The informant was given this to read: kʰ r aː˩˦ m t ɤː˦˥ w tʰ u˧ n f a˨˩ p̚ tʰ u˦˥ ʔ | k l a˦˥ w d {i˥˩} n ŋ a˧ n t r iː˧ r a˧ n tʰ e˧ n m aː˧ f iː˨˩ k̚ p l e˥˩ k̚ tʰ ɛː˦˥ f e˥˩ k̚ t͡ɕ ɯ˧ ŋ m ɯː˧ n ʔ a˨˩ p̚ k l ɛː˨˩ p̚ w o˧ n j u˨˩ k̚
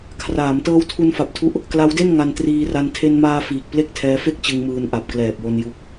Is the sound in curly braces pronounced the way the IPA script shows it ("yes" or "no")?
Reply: no